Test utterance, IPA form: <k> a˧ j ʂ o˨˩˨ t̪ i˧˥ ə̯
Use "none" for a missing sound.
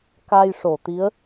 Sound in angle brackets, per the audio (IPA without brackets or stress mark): k